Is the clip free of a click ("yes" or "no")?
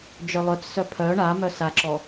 no